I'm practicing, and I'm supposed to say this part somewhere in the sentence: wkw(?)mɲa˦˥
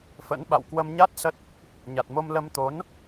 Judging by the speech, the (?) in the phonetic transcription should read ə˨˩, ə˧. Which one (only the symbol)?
ə˧